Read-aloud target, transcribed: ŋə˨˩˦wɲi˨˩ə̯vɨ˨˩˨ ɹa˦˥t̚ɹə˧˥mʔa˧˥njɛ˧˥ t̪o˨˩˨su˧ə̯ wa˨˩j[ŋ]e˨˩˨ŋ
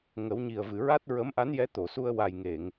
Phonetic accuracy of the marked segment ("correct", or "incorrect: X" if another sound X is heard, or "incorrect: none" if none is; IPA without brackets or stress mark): correct